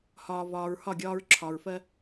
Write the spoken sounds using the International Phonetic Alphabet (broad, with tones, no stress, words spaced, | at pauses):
hɒː˨vɒː˨ɹhɒ˦˨ɡʲɒː˧ɹ ǁʰɒ˨ɹfɜ˧